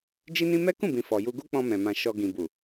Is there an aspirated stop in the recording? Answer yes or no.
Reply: no